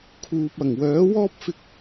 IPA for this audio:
kʰ uː˨ p̚ ɐ˨˩ ŋ w œː˨˥ w ɔː˥ p̚ f ɪ˧ k̚

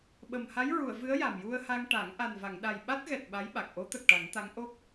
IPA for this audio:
ɓ ə˨˩ m h a˧˥ j ɹ u˨˩˨ ə̯ v ɨ˧˥ ə̯ j a˨˩ m j u˧ ə̯ h a˧ ŋ ʈ a˨˩˦ ŋ ʔ a˨˩ n v a˨˩˨ ŋ ɗ a˨˩ j ɓ a˦˥ t̚ ɣ ɛ˨˩ t̚ ɓ a˧˥ j ɓ a˨˩ k̚ ʔ o˧˥ t̪ ə˨˩ k̚ ʈ a˨˩˦ ŋ t̪ a˧˥ ŋ ʔ o˦˥ k̚

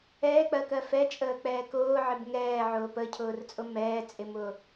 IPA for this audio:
ɛː k͡p ɜ k ɜ f ɛ t͡ʃʼ əː k͡p ɛː k ʊː ʕ ɪ b ŋ ɛː ʕ ʊː p ə cʰ ʊː r t͡sʼ ʊ m ɛː t͡sʼ ɪ m ʊː

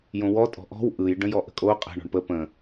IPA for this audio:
j õ w ɔ tʼ ɔ̤ ʔ ɔ̤ w ʔ ɯ j ɖ ə̃ j ɔ ʔ ə̤ kʼ o qʼ ə̤ ɳ ɔ̤ ɳ p ə p ə̃

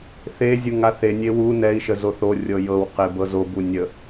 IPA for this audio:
θ e zʲ u ŋ a θ e nʲ e w u n ɛ i̯ ʃ ə z o θ o rʲ ɤ j ɤ w q e b ɤ z o b u nʲ ə

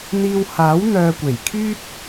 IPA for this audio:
n̪ iː˧ w h aː˨˥ w n̪ œː˧ kʷ e˨˩ j kʰ yː˥ t̚

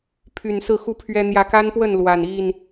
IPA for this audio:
pʰ y˨˩ n s ɹ̩˥˨ x u˦ pʰ ɥ ɛ˦ n̪ j ä˨˦ k a˦ n p w ə˥˨ n l w a˨˩ n i˥˨ n

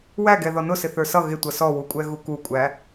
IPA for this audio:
w æ ɡ ɛ ð ɔ n ʊ s ɪ θ ə˞ s ʌ ɣ ɪ tʷ ʌ s ɔ w u kʷʼ ɛ ɣ u k u kʷʼ æ

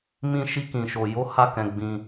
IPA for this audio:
m ĩ˧ ʃ i˧ k ĩ˨ ʃ o˨ j o˨˦ h a˦˨ k ɛ̃˧ ɡ͡b ĩ˧

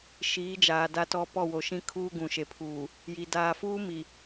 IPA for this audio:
ʃ iː˨˦ d͡ʒ aː˨ d a˦ t ɔ˦ p ɔ˦˨ w o˨ ʃ ĩ˦ kʰ uː˦ ɡ ũ˨ ʃ e˨ pʰ uː˨ | j i˨ d aː˨ f uː˦ m i˨

